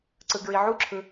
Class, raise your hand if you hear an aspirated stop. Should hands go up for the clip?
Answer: yes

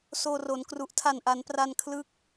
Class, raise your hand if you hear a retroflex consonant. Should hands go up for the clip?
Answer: no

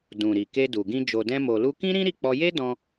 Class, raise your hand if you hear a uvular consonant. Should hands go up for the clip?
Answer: no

